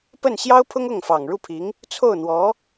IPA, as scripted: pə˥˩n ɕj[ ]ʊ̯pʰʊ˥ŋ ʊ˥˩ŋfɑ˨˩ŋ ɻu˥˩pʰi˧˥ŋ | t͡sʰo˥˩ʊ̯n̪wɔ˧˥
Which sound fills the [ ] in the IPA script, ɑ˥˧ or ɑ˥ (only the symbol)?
ɑ˥